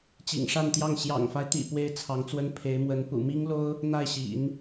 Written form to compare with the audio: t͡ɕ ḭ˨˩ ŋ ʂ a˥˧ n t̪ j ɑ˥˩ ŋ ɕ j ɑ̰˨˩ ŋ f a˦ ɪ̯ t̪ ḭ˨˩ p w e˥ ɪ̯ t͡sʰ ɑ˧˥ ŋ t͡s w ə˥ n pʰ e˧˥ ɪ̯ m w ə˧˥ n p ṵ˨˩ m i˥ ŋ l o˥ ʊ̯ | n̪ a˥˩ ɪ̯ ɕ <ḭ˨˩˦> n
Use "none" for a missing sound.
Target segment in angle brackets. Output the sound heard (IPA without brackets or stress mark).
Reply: ḭ˨˩˦